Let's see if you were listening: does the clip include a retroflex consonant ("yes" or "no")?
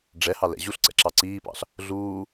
yes